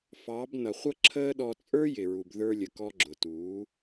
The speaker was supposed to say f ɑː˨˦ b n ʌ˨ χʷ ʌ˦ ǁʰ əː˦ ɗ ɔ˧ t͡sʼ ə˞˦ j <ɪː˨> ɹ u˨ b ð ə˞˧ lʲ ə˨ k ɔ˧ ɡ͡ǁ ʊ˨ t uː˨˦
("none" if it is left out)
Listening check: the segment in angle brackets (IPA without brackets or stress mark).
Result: ɪ˨